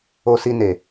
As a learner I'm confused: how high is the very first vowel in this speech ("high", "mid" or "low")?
mid